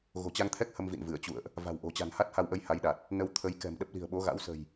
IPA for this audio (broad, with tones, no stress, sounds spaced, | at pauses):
ɣ o̤˨˩ t͡ɕ a˧ ŋ t̪ʰ ɛ˦˥ k̚ h ə˧ m v ḭ˧˨ n v ɨ˧˩ ə̯ t͡ɕ ṵ˧˨ ə̯ ʔ | v a̤˨˩ w ʔ o̤˨˩ t͡ɕ a̤˨˩ n h a˦˥ t̚ h a˧ w ʔ ə˧ j h a˨˦ j ɗ a˨˩ t̚ | n ə˧ w t̪ʰ ə˨˦ j k ɛ̤˨˩ m ɗ ə˦˥ p̚ l i̤˨˩ ə̯ ɓ o˨˦ ɣ a̰˧˥ w s ə̤˨˩ j